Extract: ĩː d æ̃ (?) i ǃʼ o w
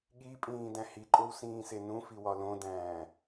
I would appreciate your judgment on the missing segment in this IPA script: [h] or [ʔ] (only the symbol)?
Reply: h